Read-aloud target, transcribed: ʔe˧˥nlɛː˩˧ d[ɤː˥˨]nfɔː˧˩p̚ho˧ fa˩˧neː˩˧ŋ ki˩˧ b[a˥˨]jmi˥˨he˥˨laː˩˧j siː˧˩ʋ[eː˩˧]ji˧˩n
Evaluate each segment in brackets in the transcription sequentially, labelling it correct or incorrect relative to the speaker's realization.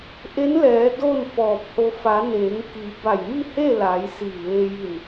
incorrect, incorrect, incorrect

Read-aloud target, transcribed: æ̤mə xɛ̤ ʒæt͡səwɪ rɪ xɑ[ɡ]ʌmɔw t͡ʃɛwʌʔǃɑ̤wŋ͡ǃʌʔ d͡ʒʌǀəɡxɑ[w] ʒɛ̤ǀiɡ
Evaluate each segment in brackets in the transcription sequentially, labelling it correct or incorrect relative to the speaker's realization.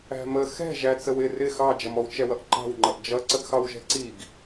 incorrect, correct

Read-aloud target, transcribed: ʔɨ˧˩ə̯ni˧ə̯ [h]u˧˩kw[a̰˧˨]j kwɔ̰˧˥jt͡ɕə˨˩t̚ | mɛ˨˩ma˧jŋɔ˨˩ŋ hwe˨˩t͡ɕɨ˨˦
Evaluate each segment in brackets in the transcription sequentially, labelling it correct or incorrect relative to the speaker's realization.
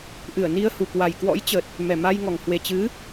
correct, incorrect

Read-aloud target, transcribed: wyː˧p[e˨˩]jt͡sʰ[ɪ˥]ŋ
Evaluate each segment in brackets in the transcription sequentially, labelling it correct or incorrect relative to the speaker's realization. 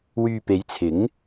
incorrect, incorrect

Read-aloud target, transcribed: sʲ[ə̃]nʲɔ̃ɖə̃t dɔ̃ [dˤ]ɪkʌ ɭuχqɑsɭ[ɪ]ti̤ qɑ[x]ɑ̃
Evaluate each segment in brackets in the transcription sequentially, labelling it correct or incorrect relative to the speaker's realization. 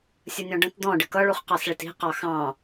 incorrect, incorrect, correct, correct

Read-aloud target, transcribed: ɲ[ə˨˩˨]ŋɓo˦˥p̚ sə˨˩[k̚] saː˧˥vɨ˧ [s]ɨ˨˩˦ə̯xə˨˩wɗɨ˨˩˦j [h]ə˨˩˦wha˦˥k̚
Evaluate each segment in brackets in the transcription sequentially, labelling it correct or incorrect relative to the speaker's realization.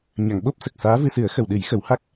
incorrect, correct, correct, incorrect

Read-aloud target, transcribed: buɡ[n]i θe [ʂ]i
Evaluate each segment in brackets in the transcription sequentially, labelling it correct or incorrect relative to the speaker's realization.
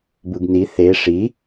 correct, correct

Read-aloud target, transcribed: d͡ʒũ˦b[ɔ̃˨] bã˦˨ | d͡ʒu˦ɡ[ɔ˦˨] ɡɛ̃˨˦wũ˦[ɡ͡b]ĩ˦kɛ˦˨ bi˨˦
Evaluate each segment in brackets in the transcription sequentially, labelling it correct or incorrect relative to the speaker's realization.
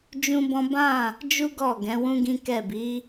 incorrect, correct, incorrect

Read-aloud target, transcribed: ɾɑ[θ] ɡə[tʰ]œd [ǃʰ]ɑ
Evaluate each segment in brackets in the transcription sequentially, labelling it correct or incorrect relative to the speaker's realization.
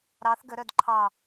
correct, incorrect, correct

